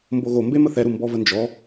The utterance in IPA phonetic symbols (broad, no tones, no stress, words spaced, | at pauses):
mboɣombe məθɛɾu mbɔvənd͡ʒɔ